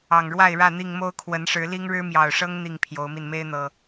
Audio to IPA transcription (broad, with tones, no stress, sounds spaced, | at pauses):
ɑ˨˩ ŋ ɻ w a˥˨ ɪ̯ ɻ ä˥˨ n̪ i˥˨ ŋ m o˦ ʊ̯ kʰ w ə˨˦ n ʂ ɻ̩˨˦ l i˦ ŋ ɻ ɻ̩˦ m j ɑ˨˩ ʊ̯ ʂ ɤ˦ ŋ n̪ i˥˨ ŋ pʰ j o˨˦ ʊ̯ m i˧ n m e˦ ɪ̯ n̪ ɤ˨˩